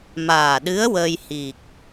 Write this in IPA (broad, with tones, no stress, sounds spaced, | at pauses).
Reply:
m aː˨˩ ɗ ɨ˧˥ ə̯ w ə˧ j h i˨˩ k̚